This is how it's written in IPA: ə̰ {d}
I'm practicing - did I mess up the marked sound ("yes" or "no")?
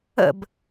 yes